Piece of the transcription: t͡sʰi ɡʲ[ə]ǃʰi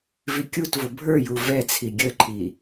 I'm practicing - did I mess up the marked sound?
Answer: no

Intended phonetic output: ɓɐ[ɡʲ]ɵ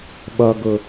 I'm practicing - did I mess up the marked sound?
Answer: yes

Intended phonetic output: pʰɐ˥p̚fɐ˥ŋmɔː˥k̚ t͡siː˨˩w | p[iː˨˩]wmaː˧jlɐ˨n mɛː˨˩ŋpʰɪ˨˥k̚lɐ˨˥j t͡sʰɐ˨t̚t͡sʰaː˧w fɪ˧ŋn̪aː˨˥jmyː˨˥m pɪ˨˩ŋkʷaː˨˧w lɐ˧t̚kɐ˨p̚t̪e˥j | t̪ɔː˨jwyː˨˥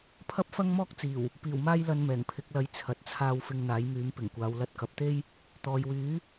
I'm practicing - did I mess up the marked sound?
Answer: no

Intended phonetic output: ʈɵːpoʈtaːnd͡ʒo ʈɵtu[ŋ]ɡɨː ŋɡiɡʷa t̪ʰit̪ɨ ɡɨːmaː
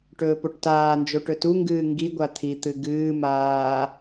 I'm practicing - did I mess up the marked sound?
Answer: no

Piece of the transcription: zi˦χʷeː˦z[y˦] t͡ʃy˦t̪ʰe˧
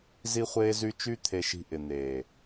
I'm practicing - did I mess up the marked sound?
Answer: no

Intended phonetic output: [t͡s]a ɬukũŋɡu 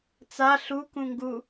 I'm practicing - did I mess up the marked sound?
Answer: no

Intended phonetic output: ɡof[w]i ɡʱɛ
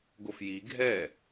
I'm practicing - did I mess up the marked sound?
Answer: yes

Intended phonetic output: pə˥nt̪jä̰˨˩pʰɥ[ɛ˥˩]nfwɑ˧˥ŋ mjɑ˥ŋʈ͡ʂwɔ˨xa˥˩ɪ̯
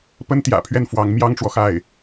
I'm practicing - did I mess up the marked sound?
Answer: no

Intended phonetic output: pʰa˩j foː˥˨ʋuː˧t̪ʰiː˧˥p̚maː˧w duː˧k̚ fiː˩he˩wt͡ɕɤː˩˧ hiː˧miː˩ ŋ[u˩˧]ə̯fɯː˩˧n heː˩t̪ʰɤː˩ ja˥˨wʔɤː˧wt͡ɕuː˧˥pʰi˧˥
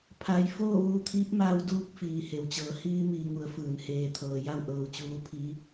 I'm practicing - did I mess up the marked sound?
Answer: no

